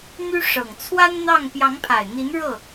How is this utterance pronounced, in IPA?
n̪ y˥ ʂ ɤ˨˩ ŋ t͡sʰ w a˥ n n̪ ɑ˥˩ ŋ p j ɑ˧˥ ŋ pʰ a˨˩ ɪ̯ n̪ i˧˥ n ɻ ɤ˥˩

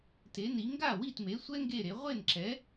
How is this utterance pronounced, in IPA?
t e˨˥ n i˨˥ ŋ ɡ a˥˨ w i˥˨ t m e˨˥ sʷ ɛ˥ ŋ ɡ e˥˨ ɾ e˨˥ ʁʷ e˥˨ n ǁ ɛ˨˥

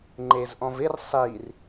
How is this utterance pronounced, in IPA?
ŋ͡ǃ e z ʔ ɔ̃ v ɪ r sˤ i r

